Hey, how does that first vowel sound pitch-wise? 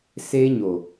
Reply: high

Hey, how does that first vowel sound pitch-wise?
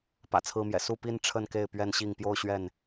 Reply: low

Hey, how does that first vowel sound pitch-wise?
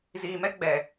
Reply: low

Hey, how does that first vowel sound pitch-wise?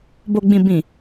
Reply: low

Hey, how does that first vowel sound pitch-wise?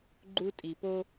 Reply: high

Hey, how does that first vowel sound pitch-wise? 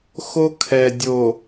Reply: high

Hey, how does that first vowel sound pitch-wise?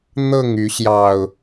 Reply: falling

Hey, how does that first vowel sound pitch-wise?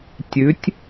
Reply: rising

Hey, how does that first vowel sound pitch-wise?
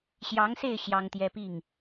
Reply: rising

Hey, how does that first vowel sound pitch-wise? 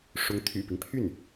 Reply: rising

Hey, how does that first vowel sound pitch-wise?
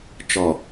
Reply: low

